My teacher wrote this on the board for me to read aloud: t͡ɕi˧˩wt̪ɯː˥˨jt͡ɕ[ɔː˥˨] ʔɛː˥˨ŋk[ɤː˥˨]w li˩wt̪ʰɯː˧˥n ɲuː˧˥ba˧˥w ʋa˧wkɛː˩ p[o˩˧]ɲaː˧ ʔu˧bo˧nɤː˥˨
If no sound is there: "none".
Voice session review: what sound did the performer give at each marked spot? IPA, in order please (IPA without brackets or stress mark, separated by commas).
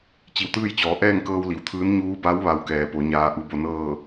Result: ɔː˩˧, ɤː˧, o˩˧